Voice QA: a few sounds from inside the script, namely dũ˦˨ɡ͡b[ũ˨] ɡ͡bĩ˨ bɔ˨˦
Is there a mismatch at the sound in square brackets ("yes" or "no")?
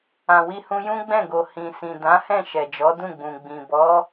no